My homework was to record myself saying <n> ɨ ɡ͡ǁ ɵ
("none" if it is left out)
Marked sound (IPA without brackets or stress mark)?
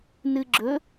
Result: n